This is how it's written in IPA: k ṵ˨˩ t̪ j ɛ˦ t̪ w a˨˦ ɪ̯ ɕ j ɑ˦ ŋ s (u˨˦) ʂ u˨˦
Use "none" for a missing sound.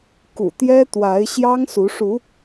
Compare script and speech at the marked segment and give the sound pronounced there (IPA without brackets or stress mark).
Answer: u˨˦